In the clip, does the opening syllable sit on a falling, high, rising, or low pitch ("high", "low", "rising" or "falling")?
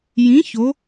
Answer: rising